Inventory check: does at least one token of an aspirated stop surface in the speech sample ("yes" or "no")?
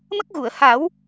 no